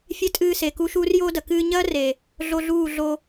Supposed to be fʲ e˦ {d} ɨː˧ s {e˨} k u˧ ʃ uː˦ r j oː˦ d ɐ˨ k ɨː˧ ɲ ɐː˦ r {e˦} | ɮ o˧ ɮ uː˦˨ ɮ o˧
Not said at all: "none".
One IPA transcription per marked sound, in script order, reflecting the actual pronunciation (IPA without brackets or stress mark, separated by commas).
tʼ, e˨, e˨